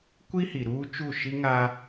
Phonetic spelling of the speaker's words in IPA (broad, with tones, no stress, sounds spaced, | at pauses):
kʷ i˦ h i˨ ɾ uː˦ t͡ʃ u˦˨ ʃ i˦ ŋ a˦